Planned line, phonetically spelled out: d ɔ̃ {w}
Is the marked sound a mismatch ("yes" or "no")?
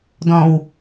no